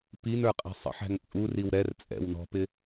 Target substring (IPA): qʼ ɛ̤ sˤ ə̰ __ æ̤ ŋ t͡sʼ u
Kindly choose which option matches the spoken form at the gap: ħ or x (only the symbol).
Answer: ħ